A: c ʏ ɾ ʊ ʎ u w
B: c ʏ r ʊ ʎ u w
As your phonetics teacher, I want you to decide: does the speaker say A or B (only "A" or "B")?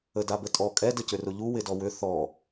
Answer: B